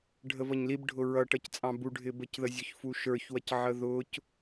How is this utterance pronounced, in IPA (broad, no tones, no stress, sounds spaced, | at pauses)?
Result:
ɖʱ ə v ʌ ɲ l i b ɖʱ ʊ ɹ ʌ ʈ ʌ c t͡sʼ ɑ̃ b u ɖʱ ɪ b ə c ð ə zʲ ʊ ç f u ʃ ə˞ ç w ʌ c ʕ ə ð ʊ c